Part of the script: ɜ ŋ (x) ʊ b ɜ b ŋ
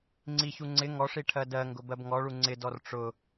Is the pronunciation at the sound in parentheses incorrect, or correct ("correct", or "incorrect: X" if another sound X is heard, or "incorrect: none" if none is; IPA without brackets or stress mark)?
incorrect: ɡ